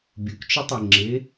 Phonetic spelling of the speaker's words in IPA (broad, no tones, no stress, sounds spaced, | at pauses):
bʲ u k t͡ʃ ɪ tˤ e ŋ͡ǁ ɪ